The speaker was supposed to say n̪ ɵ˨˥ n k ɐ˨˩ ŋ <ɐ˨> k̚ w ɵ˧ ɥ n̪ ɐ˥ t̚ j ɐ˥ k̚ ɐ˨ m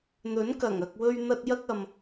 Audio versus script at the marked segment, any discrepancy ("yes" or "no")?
no